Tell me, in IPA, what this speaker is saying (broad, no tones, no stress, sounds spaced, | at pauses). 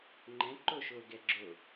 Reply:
ŋ͡ǃ ɛ̃ ǃ o ʃ oː ɡ ɛ ɡ͡ǁ o